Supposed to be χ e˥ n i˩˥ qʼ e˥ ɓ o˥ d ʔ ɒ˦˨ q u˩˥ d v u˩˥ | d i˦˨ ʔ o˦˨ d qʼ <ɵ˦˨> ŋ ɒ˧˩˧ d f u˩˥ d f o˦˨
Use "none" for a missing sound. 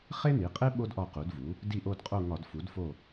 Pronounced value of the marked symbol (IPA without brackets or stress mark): o˦˨